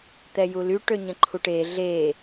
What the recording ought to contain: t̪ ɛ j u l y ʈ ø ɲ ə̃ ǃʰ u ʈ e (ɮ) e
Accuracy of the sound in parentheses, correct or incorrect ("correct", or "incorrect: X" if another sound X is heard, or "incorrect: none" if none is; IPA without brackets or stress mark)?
correct